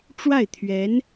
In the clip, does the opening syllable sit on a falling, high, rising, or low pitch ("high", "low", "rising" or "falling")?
falling